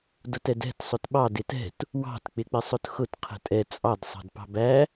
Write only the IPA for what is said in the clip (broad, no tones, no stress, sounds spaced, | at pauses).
d ʊ t ɛ d ɛ̤ t sˤ ʊ t ɓ ɑ d ɪ t ɛ̤ t | w ɑ̤ t k͡p ɪ k͡p ɪ sˤ ʊ t x ʊ t qʰ ə̤ tʼ ɛ t͡sʼ ɑ d sˤ ɑ̤ d p ɑ̤ b æ